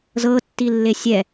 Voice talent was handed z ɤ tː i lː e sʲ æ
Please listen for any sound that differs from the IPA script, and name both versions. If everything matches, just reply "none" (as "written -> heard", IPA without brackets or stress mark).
æ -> ɛ